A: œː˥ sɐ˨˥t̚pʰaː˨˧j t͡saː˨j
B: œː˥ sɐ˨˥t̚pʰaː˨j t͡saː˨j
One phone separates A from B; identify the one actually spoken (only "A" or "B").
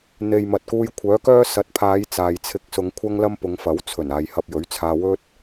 A